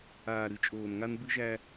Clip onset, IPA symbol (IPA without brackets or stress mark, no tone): aː